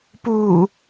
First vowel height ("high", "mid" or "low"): high